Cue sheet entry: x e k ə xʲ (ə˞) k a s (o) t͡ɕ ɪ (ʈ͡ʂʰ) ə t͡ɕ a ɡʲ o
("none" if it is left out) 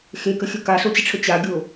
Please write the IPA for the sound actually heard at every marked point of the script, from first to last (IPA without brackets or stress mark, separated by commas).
ə, o, ʈ͡ʂʰ